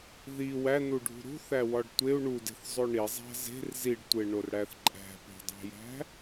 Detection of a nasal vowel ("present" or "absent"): absent